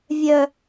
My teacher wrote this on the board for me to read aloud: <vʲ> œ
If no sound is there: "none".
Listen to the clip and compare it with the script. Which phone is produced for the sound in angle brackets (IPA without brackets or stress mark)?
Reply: vʲ